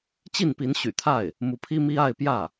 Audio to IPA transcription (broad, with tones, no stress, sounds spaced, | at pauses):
t͡ɕ i˥˩ n p i˧˥ n ɕ y̰˨˩ t̪ʰ a˥˩ ɪ̯ | m u˧˥ pʰ i˥ m i˥ a˥˧ ɪ̯ p j ä˥˩